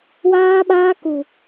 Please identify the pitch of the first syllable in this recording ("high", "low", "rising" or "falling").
high